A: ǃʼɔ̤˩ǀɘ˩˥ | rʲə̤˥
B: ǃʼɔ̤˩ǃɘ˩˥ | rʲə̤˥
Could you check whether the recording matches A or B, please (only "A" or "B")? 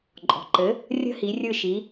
B